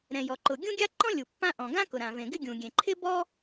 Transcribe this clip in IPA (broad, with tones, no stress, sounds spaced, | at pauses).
ɾ ɛ̃˩ j ɔ˩ ǃ ʊ˩ ɡʲ ũ˥ ɡʲ a˥ ǃ ɔ̃˥ lʲ u˩ pː ã˥ ʔ ɔ̃˩ ɡ ã˥ k ʊ˩ ɾ ã˩ v ẽ˩ ɡ ɪ˥ ɡʲ ũ˩ ɡʲ ẽ˩ ǃʰ ɪ˥ b ɔ˥